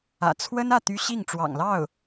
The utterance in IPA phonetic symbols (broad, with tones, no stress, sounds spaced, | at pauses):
ä̰˨˩ t͡sʰ w ə˥ n ä˥˩ t̪ y˥ ɕ i˥˩ ŋ ʈ͡ʂ w ɑ̰˨˩ ŋ l ɑ˥˩ ʊ̯